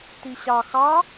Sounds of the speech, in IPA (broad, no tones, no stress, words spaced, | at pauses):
tiɕɑ xɑ